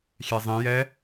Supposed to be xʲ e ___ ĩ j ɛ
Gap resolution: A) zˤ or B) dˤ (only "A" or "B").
A